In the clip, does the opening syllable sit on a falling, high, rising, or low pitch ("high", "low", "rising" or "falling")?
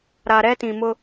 low